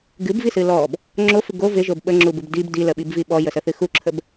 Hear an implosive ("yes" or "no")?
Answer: yes